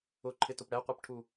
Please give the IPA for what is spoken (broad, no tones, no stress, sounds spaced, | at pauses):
ʊ ǃʰ ɪ t ʊ p ɽ ɛ qʷ ɜ p ʈʰ u